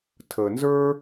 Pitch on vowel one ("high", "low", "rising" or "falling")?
low